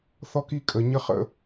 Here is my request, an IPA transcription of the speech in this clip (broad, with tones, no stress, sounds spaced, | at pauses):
θ ɔ˦ k i˦ kʼ ə˧ ɲ ə˦ χ ə̰˦